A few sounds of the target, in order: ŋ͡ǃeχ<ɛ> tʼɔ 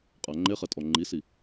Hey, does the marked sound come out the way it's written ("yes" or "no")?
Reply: yes